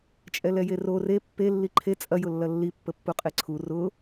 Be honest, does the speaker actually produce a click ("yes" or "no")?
yes